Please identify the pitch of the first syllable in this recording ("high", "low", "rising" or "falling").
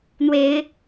rising